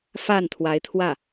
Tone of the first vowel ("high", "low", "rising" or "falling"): falling